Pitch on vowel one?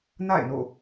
falling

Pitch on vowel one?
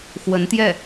rising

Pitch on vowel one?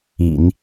low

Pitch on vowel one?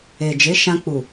low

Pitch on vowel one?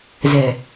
low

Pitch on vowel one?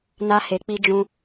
high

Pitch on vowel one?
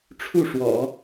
falling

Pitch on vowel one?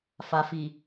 low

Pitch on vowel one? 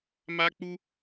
high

